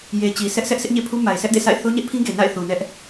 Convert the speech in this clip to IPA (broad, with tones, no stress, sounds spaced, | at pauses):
j e˨ t͡ɕ i˨ s ɛ˦ ʔ s ɛ˦ ʔ sʰ ɪ˦ ʔ ɲ ḛ˦˨ pʰ u˦ m a˨ ɪ̯ s ɛ˦ ʔ d ḛ˦˨ sʰ a̰˦˨ ɪ̯ θ o˦ ɲ ɛ˦ ʔ pʰ ĩ˦ ɡ e˨ n a̰˦˨ ɪ̯ θ u˨ n ɛ˦ ʔ